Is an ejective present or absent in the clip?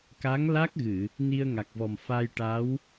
absent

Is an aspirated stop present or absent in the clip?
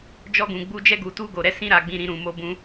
absent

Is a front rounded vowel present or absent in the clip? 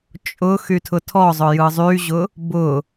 present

